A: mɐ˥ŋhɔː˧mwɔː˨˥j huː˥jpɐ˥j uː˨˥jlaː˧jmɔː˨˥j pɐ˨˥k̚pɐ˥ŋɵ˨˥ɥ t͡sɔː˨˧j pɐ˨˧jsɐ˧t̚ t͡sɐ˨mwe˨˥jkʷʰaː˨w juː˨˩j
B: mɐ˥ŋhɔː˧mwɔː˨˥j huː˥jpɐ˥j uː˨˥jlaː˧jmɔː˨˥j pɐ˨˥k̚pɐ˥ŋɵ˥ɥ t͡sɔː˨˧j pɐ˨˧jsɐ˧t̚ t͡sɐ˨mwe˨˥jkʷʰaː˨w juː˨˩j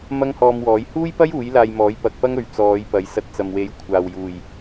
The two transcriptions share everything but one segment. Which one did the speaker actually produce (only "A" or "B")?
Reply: A